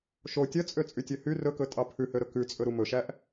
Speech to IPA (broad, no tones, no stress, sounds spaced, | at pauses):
ʃ o tʲ œ t͡sʼ ø t͡sʼ y tʲ ø h y r ɵ k ɵ tʼ ɑ pʰ ʉ h ø ɾ ɵ k ʉ t͡sʼ ɵ ɾ u m ɵ ʃ æ ʔ